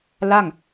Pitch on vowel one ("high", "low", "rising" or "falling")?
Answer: falling